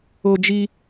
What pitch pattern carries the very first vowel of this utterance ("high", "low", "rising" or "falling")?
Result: high